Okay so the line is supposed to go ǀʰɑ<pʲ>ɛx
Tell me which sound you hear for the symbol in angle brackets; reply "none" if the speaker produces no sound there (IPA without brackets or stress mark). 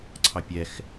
pʲ